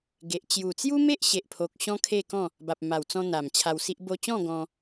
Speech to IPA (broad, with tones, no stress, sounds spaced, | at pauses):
ɡ e˨ ʔ t͡ɕ j u˨˩ t͡s j u˦ m e˦ ʔ ɕ e˨ ʔ pʰ o˨ k̚ ɕ ɔ̃˦ kʰ e˥˧ k ɔ̃˥˧ | b a˨ p̚ m a˨˩ w t͡s ɔ̃˧ n̪ a˨˩ m t͡ɕʰ a˧ w s i˦ ʔ b o˧ t͡ɕ ɔ̃˥˧ ɡ ɔ̃˦